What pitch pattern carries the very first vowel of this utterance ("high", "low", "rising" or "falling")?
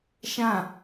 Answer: falling